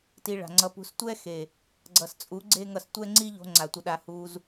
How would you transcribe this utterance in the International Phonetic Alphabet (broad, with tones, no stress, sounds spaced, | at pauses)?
t i˧ ɭ a̤˨ ŋ͡ǀ ʌ˧ p ṳ˧ s tʷ ɛ˦ x e˨ | ɡ͡ǀ ʌ˨ s t͡sʼ u˨˦ ɡ͡ǀ e˦ ŋ ʌ˧ s tʷ ɛ˦ ŋ͡ǀ i˦ ʎ o̤˧ ŋ͡ǀ a˨ tʷ ʌ˧ ɗ a˧ h u˧ z